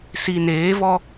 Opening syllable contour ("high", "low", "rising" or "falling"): low